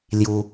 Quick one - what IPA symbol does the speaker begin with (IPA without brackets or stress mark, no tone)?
l